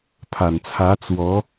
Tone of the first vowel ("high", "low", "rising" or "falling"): low